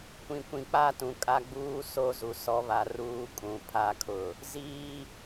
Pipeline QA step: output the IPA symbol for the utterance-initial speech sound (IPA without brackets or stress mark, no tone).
kʷ